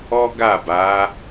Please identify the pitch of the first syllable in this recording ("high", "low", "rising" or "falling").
high